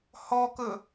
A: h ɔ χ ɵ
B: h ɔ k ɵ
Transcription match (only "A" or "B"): B